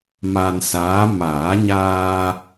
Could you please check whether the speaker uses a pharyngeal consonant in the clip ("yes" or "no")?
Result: no